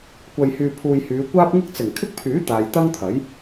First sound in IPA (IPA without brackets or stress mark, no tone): kʷ